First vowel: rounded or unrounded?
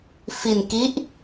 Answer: unrounded